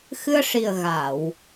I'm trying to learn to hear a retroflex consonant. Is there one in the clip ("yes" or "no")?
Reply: yes